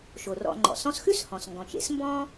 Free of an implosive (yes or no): yes